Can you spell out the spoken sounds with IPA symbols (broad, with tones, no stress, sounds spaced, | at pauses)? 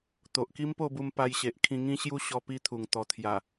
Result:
t̪ o˨ ʔ k i˦ m p o˥˧ b u˧ m p a˧ j ɕ e˨ ʔ kʰ ĩ˧ ŋ ĩ˦ ɕ j u˦ ɕ ɔ˧ p i˦ t̪ʰ u˨˩ ŋ t̪ ɔ˨˩ t̪ʰ j a˨˩